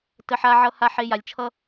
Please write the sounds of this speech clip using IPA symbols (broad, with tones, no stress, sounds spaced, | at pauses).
t ə˧ ħ a˦ ʕ ʌ˦ h a˧ ħ e˧ j a˨ lʲ t͡ʃʰ ʌ˦